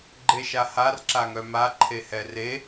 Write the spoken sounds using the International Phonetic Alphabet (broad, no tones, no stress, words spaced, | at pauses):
ɡ͡ǃeʃahar ǁaŋœma ǃʰehɛre